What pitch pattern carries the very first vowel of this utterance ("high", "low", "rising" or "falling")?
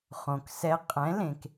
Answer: low